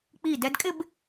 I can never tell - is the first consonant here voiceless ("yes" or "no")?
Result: yes